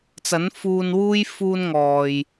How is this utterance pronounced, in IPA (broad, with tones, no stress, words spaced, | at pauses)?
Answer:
t͡sɐ˨˥nfuː˧nwuː˥j fuː˥nŋɔː˨j